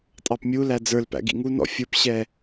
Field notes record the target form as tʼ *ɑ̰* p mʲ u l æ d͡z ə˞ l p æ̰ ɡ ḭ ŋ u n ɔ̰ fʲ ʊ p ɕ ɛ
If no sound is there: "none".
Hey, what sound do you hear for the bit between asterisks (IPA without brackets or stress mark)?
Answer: ɑ